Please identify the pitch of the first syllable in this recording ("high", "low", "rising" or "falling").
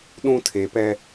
high